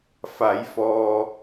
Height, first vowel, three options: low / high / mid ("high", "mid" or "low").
low